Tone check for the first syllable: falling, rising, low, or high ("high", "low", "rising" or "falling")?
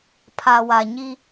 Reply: low